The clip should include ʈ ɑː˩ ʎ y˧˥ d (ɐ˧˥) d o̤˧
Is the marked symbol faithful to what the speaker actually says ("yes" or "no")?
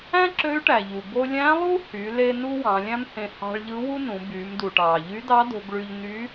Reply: no